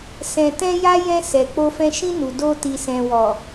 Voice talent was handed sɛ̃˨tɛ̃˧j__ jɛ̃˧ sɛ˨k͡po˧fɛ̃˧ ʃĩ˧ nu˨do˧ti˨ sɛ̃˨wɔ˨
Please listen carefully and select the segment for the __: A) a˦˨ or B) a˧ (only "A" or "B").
B